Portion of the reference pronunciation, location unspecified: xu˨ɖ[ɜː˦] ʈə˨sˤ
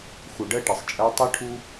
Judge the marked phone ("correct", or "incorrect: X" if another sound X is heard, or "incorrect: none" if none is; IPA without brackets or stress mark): incorrect: ɜ˦